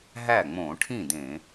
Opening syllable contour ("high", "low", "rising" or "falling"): falling